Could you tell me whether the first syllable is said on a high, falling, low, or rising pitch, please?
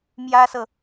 high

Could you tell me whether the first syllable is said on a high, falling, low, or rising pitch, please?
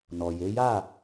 low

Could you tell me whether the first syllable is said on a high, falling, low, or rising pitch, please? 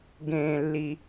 low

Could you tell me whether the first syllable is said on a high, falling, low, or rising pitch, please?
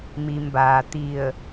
low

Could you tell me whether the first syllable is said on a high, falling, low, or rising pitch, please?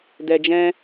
low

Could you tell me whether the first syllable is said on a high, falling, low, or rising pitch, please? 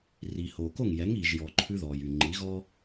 low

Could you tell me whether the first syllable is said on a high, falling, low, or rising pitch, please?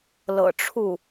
low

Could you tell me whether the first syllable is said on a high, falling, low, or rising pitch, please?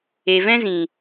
low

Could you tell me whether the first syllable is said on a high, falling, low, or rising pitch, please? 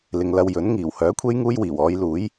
low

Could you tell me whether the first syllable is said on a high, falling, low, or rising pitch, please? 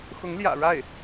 rising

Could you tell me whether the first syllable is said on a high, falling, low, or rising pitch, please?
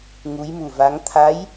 rising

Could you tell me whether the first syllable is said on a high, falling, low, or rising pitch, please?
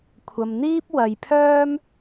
low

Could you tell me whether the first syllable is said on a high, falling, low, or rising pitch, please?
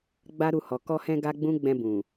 high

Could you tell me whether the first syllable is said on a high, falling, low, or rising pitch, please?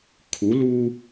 rising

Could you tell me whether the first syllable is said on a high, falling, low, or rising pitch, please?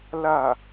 falling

